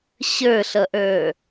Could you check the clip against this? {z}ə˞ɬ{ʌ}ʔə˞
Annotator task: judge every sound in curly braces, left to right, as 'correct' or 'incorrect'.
incorrect: ɕ, correct

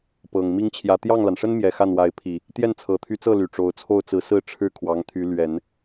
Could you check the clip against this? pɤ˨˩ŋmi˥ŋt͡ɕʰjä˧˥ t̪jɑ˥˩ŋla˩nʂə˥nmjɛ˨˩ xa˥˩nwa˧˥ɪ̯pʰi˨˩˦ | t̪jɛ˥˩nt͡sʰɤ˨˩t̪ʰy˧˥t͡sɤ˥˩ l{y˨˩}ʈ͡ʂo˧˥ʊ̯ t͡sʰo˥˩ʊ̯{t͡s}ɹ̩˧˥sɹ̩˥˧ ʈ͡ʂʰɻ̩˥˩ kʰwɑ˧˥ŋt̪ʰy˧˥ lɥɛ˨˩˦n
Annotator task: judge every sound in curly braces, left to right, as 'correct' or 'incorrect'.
correct, correct

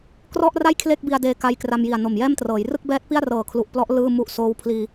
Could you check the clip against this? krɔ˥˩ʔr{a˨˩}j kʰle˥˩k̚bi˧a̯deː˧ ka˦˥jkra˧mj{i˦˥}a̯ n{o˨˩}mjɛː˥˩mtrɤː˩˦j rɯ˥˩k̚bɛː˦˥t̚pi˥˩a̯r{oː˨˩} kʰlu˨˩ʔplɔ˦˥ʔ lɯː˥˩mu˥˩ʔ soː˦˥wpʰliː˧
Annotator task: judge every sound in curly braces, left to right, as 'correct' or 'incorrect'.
incorrect: a˥˩, incorrect: i˨˩, correct, incorrect: ɤː˨˩

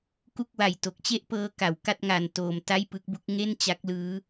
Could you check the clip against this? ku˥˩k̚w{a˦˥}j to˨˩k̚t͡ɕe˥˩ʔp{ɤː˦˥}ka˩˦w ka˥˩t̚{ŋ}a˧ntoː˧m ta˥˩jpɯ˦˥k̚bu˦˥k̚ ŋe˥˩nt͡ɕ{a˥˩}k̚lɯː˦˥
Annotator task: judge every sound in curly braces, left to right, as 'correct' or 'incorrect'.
incorrect: a˨˩, correct, correct, incorrect: a˦˥

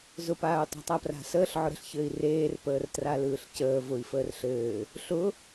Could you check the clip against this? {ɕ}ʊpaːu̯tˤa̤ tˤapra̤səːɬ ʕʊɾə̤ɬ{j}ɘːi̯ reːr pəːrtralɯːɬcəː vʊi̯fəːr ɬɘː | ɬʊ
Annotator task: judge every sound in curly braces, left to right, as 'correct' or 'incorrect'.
incorrect: z, incorrect: ç

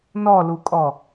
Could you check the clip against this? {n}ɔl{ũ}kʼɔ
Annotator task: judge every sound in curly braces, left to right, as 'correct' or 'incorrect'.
correct, incorrect: u

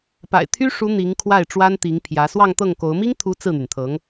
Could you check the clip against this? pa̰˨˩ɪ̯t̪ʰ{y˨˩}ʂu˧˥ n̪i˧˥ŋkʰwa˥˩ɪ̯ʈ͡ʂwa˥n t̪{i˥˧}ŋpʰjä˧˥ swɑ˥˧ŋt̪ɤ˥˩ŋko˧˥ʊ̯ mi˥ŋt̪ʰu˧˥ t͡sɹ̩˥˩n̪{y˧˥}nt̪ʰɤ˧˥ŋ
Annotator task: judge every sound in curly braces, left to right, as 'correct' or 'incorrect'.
incorrect: y˥, incorrect: i˧˥, incorrect: y˩

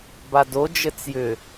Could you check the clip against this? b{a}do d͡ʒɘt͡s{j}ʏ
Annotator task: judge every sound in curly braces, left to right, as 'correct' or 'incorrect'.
correct, correct

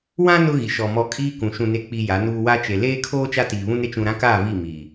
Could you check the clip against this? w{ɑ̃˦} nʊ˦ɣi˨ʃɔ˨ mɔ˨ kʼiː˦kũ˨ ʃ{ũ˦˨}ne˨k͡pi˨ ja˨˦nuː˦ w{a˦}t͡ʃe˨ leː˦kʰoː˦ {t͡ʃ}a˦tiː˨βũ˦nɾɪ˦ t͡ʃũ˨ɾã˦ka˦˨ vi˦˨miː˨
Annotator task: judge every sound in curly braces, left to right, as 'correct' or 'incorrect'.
incorrect: ã˦, incorrect: ũ˨, correct, correct

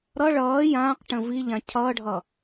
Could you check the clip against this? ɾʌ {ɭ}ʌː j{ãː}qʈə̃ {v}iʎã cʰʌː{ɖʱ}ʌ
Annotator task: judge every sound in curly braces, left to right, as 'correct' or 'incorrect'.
correct, correct, correct, correct

